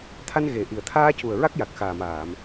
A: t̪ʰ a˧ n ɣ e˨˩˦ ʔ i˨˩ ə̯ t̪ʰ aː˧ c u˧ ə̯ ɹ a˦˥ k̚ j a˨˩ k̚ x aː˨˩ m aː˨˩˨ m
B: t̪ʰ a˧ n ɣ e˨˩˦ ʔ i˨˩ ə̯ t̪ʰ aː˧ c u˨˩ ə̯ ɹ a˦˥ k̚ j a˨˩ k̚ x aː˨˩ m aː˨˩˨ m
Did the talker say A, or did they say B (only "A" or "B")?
B